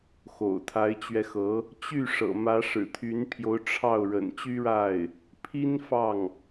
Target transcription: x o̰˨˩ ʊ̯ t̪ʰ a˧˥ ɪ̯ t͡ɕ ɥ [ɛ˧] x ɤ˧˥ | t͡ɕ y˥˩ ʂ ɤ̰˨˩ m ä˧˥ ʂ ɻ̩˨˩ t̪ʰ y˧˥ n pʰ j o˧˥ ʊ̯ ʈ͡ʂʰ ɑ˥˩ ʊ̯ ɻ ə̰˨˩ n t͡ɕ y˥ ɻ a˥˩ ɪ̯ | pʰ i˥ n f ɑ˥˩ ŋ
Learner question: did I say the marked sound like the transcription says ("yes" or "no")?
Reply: yes